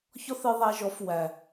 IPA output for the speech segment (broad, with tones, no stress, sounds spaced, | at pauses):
ç ɔ˦ θ ɨ˧ ðˤ æ˧ ʒ ɔ˨˦ f w æ˨